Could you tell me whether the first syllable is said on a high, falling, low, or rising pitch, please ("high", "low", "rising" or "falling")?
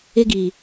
high